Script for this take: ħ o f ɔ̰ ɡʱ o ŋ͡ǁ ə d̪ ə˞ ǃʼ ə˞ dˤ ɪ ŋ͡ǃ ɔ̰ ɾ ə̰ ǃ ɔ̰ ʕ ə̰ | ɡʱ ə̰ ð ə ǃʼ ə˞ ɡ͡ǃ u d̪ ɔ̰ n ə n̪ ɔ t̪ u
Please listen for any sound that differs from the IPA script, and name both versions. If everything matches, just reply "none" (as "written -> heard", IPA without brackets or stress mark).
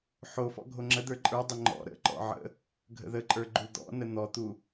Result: none